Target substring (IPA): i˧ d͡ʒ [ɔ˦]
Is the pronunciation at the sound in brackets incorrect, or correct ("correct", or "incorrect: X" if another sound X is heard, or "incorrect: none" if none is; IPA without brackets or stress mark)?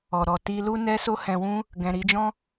incorrect: ɔ̃˦